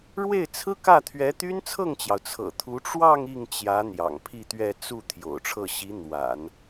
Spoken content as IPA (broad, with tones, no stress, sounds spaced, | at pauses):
ɻ w e˥˩ ɪ̯ t͡sʰ ɹ̩˥ k ä˥˩ t̪ʰ ɥ ɛ˧˥ t̪ y˥ n t͡sʰ ɤ˥˩ ŋ t͡ɕ j ɑ˩ ʊ̯ t͡sʰ ɤ̰˨˩ t̪ʰ u˧˥ ʈ͡ʂ w ɑ˥˧ ŋ i˥˩ ŋ t͡ɕ j ä˧˥ n̪ j ɑ̰˨˩ ŋ pʰ i˥˧ t̪ ɥ ɛ˥˧ t͡s u˥˩ t̪ʰ j o̰˨˩ ʊ̯ ʈ͡ʂʰ ɤ˥˩ ɕ i˧˥ n̪ w a̰˨˩˦ n